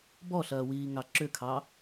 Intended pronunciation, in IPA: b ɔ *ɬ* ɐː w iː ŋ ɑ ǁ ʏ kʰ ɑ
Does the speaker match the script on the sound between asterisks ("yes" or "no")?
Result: yes